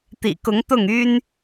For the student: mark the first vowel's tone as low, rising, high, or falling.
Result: low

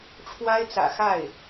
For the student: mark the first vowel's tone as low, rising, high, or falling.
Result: high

